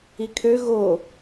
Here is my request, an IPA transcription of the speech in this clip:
i kʰ ø ɣ o

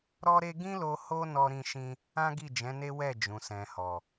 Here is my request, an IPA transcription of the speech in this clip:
ɾ ɔ˧ ɾ e˧ ɡ ĩ˦ l o˧ h o˦ n ɔ˧ ɾ ĩ˧ ʃ ĩ˧ | ã˦ ɡ i˦˨ d͡ʒ ɛ̃˨˦ n e˦ w ɛ˦˨ d͡ʒ ũ˨ s ɛ̃˨ h ɔ˨

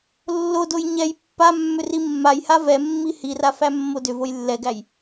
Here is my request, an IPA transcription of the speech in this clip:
lː o d o j ɲ ɛ j pː a mː ʏ r i mː a j h a v ɛ mː i h i r a f æ mː o d ʏ v o j lː ɛ ɡ æ j

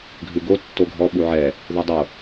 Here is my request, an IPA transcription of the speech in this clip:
ɡʱ ʉ ɡ o tː o ɡʱ ɔ ɓ u ʕ ɛ | ð u dˤ o

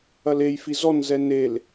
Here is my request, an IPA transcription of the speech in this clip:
ɐ l e j f i z ɔ n z ɛ n e l

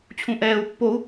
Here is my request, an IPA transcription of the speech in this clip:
t͡ɕʰ ũ ʔ ɛː u̯ pː o u̯

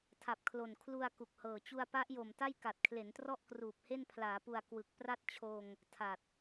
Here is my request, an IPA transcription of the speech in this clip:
tʰ a˨˩ p̚ kʰ l o˨˩ n kʰ l u˧ a̯ k u˨˩ k̚ h ɤː˨˩ t͡ɕ u˧ a̯ p a˦˥ ʔ j o˨˩ m t a˥˩ j k a˨˩ t̚ kʰ l e˩˦ n t r ɔ˥˩ ʔ k r uː˨˩ p̚ h e˥˩ n pʰ l aː˩˦ p u˨˩ a̯ k w ɯ˨˩ k̚ p r a˥˩ t̚ t͡ɕʰ oː˧ ŋ | tʰ a˨˩ t̚

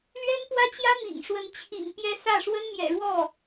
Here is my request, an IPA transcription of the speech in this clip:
l ɥ ɛ˥ n p w ä˥ t͡ɕ j ä˥ m ḭ˨˩ ŋ ʂ w ə˧˥ n t͡ɕʰ ḭ˨˩ ŋ p j ɛ˥ s ä˥˩ ʂ w ə˥ n m j ɛ̰˨˩ ɻ w ɔ˥˩

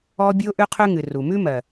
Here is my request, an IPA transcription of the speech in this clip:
ɔ˦ bʲ ʉ˦ ʊ̯ ʔ ʉ˦ qʰ ʉ˦ ŋ ɨ˨ r u˨ m ʉ˦ m ɜ˨

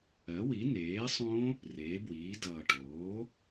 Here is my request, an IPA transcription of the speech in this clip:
ɜ˩˥ w i˩˥ n eː˩˥ sˤ õ˦˥ | r eː˩˧ b w iː˩˧ d ʌː˨˩ ʈ oː˩˥

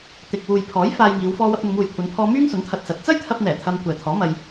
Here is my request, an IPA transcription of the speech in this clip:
t̪ ɪ˨ k̚ w uː˨ j pʰ ɔː˨˥ j f aː˧ j ŋ iː˨˧ w f ɔː˧ w ɐ˧ p̚ n̪ ʊ˨˧ ŋ uː˨ j kʷʰ ɐ˨˧ n pʰ ɔː˧ m yː˥ ŋ s ʊ˨˥ ŋ t̪ʰ ɐ˧ t̚ s ɐ˨˥ t̚ t͡s ɐ˥ j t̪ʰ ɐ˧ p̚ n̪ ɛː˨˩ t̪ʰ ɐ˧ m kʷ ɛː˨ t̪ʰ ɔː˨˥ m ɐ˧ j

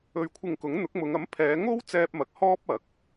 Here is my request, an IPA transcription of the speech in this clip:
ɵ˨ ɥ kʷʰ ɪ˨ ŋ k ʊ˨˥ ŋ n̪ ʊ˨˥ k̚ m ʊ˨˧ ŋ ɐ˨˥ m pʰ ɛː˨˧ ŋ o˥ w t͡s ɛː˧ p̚ m ɐ˨˥ k̚ h ɔː˥ p̚ ɐ˨˥ k̚

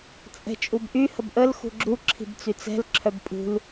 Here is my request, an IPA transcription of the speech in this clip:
t͡sʼ ɛ̤ t͡ʃʼ u b ʔ y h ə b ʔ ə l x ṳ ɡ͡ǁ u ǁʰ i̤ b t͡s y t͡s ɛ̤ l ǁʰ œ b pʼ ṳ l

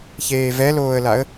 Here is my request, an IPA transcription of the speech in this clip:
ç eː v ɛ l oː ə̯ l a ə̯

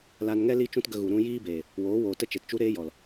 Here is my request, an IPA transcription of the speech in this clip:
l a˧ n ŋ ɛ˦ l i˦ t͡ʃ ũ˦ t ɡ ə˧ ɣ u˨ ɾ ũ˧ j iː˦ b eː˨ | w oː˨˦ w oː˨ t ə˦ t͡ʃ e˨ t t͡ʃ u˦ ɾ eː˦ j ɔ˨ l

